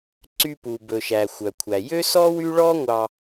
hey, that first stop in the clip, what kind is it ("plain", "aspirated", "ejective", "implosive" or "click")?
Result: click